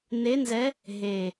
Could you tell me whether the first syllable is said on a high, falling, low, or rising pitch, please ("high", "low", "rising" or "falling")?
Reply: rising